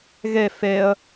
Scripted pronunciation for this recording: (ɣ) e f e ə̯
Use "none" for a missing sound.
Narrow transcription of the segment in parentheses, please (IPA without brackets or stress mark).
ɣ